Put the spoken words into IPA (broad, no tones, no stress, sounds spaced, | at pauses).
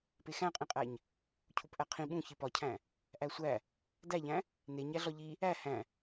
p e x æ̃ qʼ ĩ qʼ æ ɲ | cʰ u p ʔ æ qʰ ĩ ɓ ũ ç i p ɒ cʰ æ̃ | ʔ æ sʷ æ | d æ ʎ æ̃ | n e ɲ æ ɮ ɒ ʎ i | æ h æ̃